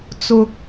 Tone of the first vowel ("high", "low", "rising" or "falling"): low